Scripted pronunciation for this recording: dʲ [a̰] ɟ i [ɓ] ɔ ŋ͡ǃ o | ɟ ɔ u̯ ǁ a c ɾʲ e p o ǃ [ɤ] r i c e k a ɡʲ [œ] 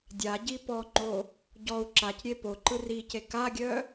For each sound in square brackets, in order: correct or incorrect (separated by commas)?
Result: incorrect, incorrect, incorrect, correct